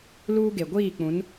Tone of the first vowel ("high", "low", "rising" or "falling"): high